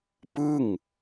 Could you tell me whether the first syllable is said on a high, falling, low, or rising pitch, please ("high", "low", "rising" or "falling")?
falling